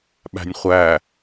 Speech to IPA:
ɓ æ̤ nʲ χʷ æ

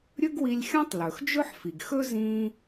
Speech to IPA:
ɾʲ ɵ˥ ɡ w i˧ lʲ xʲ ɔ̃˥ tˤ l ɵ˩ x d͡ʒ ɵ˥ ħ f i˩ ɡ x ɵ˥ z ĩ˧

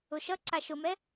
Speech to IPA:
ʊ ʃ ʌ ǀ a ʃ ʊ m ɛ

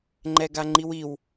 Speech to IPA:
ŋ͡ǃ ɛ ɡ a ŋ͡ǃ i w i w

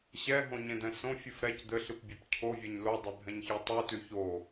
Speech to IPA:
ɕ ɛ ɦ õ ɲ ẽ d̪ ɛ̃ s õ fʲ ʉ f ɾ ɛ c d̪ ɘ ɬ ɨ p bʲ e p cʰ o vʲ ɛ ɲ l o dˤ e bʱ ɛ̃ ɲ ç e tˤ ʉ t ʉ ç o

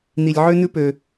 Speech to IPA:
n̪ i˧ lʲ ʕ ø˦ n̪ ʉ˦ p ø˧

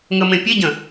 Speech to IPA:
ŋ ə m ẽ pʲ e ɟ ə̃

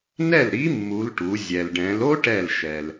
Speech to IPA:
n ɛ˥˩ l ɾ i˧˥ mː u˩˧ l ʈ u˩˧ zʲ ɛ˩ l ɖ ɛ̃˩˧ l o˥ ʈ ɛ˧˩ l ʃ ɛ˩ l

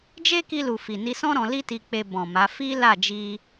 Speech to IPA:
d͡ʒ e˦ k i˧ l u˨ f i˨ n i˧ s ɔ̃˦ ɾ ɔ̃˧ l i˦ t i˧ k͡p e˧ b ɔ̃˨ m a˨˦ f i˦ l a˦˨ d͡ʒ i˧

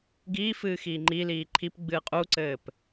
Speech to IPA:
ɡ iː f ɨː x iː ŋ͡ǃ i l iː ǃʰ i p ɡ͡b ɨː qʼ u ǀ ɘː p

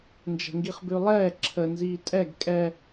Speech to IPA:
n d͡ʒ ɛ̤ ŋ ɡ i χ b ʉ lˠ ɛː ǁʰ ə n z iː tʼ ɛ ɡ kʼ ɛ

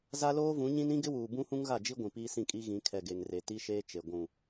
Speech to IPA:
z a˦ l oː˦ v ũ˨˦ ɲ ĩ˦ n ĩ˦ ɡ ɪ˦ w uː˨ b ũ˦ h ũ˦ ŋ ɣ a˦˨ d͡ʒ i˦ ɡʷ ĩ˨ p iː˦ s ĩ˦˨ kʼ i˦ ɣ ĩ˨˦ kʰ ɛ˨ ɡ e˨ ŋ r e˨ t i˦ ʃ eː˦ t͡ʃ e˨ ɡʷ ũ˨

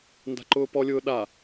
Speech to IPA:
n d a̤ ǃ ʊː p ɔ lʲ ʊː ɗ a

